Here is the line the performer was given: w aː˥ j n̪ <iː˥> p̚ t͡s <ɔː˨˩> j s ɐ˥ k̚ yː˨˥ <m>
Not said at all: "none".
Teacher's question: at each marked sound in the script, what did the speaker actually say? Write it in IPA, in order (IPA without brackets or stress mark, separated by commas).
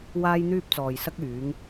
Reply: yː˥, ɔː˨, ŋ